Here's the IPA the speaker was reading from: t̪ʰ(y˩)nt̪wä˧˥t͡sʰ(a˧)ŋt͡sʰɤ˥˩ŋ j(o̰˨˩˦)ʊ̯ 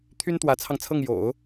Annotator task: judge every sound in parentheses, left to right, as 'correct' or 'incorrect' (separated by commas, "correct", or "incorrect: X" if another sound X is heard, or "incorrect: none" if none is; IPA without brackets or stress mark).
incorrect: y˥, incorrect: ɑ˧, correct